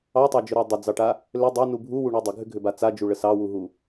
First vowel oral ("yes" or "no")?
yes